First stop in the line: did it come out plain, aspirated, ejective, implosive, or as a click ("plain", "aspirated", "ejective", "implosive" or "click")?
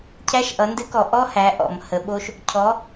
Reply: aspirated